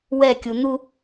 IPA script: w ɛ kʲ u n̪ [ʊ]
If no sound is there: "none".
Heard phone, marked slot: u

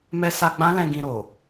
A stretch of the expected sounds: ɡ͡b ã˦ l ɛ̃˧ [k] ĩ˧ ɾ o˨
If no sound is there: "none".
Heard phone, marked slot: ɡ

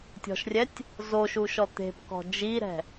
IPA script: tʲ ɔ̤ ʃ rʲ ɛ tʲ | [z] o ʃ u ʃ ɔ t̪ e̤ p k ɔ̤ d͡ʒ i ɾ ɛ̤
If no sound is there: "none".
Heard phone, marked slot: z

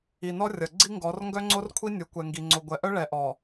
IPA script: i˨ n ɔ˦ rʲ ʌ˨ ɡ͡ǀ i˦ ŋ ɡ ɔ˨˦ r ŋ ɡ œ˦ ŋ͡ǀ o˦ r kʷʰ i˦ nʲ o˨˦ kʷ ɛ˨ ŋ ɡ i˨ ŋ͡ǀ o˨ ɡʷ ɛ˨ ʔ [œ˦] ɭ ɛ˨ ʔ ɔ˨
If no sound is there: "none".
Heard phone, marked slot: œ˦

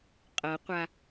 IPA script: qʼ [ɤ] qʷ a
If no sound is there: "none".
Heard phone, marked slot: ɤ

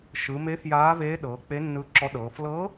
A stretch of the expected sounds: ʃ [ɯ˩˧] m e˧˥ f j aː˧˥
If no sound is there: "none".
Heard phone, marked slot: ɯ˩˧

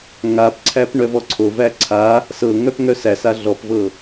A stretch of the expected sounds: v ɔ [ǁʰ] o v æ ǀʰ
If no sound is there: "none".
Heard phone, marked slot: ǀʰ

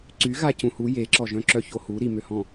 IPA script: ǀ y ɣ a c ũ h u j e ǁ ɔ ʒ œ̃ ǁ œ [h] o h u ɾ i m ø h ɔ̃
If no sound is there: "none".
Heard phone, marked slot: ç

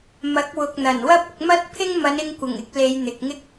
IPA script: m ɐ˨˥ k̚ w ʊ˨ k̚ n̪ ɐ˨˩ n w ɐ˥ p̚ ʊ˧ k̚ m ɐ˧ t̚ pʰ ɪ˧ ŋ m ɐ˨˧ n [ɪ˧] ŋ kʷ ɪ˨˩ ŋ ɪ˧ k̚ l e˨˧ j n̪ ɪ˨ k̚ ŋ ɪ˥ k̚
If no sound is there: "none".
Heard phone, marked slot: ɪ˧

